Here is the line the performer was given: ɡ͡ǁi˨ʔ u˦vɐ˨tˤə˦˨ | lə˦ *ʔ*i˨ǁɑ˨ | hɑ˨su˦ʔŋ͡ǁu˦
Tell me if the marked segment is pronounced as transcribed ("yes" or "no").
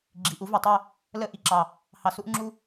yes